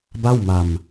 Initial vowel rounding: unrounded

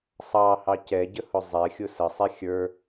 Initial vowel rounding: unrounded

